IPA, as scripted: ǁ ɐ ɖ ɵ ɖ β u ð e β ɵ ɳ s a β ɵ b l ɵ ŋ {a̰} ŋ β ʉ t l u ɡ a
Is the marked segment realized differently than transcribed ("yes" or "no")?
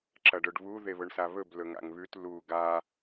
no